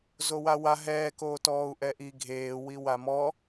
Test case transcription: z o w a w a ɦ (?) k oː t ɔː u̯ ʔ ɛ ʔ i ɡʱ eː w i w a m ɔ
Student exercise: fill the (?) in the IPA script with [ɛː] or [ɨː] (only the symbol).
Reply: ɛː